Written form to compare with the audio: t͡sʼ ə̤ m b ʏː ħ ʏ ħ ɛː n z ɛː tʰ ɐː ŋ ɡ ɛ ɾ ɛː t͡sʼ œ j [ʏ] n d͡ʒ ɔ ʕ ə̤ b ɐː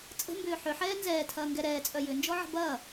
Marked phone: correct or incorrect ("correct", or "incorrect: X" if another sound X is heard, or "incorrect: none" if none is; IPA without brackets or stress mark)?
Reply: correct